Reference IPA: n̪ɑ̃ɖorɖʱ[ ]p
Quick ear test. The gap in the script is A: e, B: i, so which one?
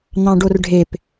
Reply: A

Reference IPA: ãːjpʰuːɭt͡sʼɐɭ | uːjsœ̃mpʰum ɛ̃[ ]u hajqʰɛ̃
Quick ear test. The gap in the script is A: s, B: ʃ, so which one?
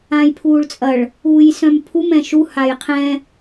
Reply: B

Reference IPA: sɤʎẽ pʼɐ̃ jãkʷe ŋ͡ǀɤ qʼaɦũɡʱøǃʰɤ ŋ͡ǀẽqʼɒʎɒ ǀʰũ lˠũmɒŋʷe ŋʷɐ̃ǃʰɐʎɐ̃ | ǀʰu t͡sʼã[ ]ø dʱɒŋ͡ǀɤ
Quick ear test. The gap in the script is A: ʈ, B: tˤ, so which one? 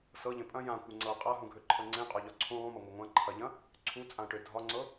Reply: A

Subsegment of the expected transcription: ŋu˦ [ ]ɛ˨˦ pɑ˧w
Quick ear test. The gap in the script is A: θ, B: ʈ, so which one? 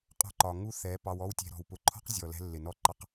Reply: A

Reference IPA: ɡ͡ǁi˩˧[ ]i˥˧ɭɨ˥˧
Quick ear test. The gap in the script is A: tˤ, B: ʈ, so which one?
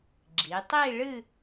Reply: A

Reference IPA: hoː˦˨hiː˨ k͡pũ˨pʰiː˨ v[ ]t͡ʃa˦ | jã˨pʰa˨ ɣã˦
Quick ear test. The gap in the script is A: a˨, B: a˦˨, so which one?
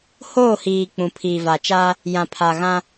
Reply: A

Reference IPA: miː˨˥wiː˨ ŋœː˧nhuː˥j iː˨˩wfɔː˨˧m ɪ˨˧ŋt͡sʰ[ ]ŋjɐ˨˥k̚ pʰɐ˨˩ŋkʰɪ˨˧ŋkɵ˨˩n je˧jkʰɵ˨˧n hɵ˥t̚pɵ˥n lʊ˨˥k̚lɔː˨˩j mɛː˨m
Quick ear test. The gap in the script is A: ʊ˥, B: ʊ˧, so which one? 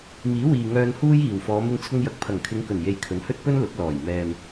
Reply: B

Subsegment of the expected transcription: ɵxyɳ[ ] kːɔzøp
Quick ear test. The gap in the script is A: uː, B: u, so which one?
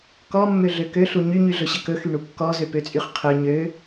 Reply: B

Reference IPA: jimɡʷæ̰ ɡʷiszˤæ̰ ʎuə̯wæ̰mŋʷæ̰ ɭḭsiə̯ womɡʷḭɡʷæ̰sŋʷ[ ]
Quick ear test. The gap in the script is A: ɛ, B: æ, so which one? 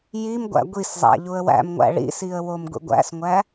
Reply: B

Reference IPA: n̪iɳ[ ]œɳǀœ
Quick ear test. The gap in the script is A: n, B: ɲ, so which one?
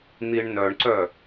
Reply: A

